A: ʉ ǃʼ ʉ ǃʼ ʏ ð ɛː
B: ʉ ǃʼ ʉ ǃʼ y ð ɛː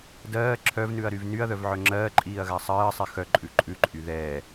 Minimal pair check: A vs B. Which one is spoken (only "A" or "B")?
B